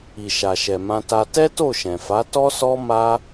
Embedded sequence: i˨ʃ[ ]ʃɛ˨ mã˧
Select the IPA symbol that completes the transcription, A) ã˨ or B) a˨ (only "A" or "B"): B